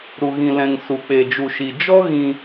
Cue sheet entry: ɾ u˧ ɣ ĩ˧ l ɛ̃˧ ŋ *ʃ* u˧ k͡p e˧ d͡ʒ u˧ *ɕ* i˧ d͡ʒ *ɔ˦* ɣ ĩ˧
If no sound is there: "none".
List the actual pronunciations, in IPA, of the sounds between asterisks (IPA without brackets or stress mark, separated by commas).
s, ʃ, ɔ˦